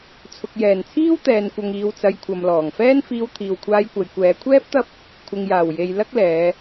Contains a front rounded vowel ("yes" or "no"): no